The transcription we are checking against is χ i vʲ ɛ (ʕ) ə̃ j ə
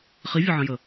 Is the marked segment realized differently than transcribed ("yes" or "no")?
no